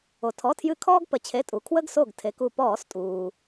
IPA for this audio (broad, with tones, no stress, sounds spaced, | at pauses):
o˩ tʰ ɔ˩˧˩ tʰ j ɨ˧˩ kʰ ɔː˦ ɡ p ə˩˧ t͡ɕʰ e˩˧˩ tʼ u˩ kʰ w ə˦ ɡ s o˧˩ ɡ tʰ e˩˧ k u˧˩ p ɔː˧˩˧ s tʼ uː˩